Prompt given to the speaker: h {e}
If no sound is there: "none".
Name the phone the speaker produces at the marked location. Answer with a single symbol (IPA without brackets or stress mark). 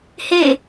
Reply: e